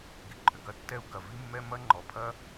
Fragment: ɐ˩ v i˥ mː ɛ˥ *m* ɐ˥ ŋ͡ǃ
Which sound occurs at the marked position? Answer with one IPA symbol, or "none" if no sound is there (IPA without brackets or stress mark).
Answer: m